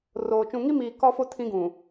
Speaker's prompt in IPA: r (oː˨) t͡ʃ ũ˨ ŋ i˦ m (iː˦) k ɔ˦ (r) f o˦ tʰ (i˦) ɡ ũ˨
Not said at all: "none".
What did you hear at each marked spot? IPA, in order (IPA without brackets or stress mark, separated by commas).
oː˨, iː˨, none, ĩ˦